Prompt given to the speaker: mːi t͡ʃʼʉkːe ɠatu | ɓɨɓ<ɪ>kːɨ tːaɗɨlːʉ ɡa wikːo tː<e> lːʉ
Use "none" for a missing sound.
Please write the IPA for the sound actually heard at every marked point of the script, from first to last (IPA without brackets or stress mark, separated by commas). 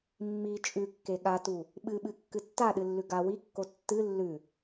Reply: ɨ, ɨ